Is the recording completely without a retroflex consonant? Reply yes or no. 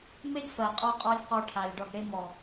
no